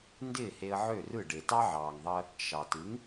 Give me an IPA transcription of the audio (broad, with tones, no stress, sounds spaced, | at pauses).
n d ɪː˥˩ h e˧ ə̯ ʕ ø˥˩ r ɯ˥˩ ɖ e˩ t ɑ˥ ʕ ɑː˩ ŋ ðˤ əː˧ | ʃ ɑ˩ t ɯ˩˥ ŋ